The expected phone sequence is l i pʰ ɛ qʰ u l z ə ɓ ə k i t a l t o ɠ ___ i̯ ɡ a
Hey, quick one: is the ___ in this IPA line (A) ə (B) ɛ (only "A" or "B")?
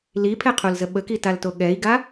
B